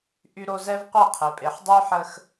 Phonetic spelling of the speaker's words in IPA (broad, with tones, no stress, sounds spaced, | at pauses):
ʔ y˦ ɾ o˦ z ɛ˦ v qʷ e˦˨ qʰ e˨ pʼ e˨ ħ dˤ y˦ ħ ə˦ x